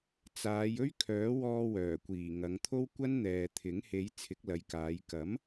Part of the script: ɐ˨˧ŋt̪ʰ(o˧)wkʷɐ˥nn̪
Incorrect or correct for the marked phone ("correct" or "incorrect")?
incorrect